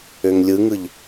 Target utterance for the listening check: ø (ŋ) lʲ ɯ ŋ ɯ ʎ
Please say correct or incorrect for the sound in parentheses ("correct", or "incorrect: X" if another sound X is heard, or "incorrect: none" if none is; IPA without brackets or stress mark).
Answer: correct